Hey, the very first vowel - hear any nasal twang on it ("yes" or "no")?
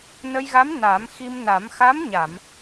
no